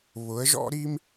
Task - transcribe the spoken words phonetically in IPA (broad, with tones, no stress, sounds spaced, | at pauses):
β ʊ˨˦ ə̯ ʒ ɔ̰˥ ɾ i˥ m